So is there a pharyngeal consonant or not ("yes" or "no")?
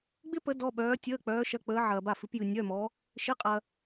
yes